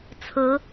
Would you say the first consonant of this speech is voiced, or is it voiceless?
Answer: voiceless